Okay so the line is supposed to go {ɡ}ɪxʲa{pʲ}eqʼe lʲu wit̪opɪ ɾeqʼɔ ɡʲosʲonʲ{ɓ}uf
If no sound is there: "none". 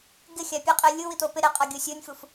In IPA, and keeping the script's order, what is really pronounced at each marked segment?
ɡ, pʲ, f

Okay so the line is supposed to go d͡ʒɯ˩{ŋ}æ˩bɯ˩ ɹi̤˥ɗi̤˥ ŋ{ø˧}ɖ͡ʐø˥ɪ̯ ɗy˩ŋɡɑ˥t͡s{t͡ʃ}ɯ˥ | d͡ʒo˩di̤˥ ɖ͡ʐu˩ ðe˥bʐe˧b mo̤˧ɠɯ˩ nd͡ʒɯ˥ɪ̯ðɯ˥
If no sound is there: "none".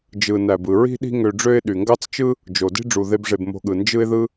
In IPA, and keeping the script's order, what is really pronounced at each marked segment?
n, ø˧, t͡ʃ

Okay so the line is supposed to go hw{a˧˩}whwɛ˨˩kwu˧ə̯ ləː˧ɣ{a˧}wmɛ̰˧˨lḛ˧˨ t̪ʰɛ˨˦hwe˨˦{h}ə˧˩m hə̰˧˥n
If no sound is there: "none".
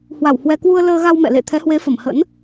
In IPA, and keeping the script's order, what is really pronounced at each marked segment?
a˧˩, a˧, f

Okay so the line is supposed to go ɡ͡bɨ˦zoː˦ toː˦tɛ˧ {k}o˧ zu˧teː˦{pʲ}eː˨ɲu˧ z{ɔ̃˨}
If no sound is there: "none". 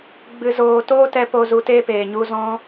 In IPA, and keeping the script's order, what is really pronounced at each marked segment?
p, p, ɔ̃˧

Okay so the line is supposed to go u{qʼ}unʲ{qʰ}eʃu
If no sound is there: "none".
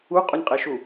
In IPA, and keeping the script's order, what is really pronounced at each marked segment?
qʼ, qʼ

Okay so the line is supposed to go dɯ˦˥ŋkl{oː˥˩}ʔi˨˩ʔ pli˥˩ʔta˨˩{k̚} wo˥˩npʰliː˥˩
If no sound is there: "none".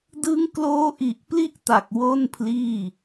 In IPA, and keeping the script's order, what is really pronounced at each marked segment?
oː˦˥, k̚

